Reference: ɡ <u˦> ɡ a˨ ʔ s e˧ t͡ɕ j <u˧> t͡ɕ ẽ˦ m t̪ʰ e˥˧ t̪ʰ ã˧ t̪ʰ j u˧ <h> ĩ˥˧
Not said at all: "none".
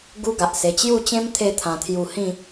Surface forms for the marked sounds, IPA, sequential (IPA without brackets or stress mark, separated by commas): u˦, u˥˧, h